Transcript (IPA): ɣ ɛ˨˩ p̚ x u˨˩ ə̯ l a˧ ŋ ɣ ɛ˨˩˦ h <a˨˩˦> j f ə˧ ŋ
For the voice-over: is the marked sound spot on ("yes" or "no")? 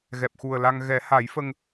yes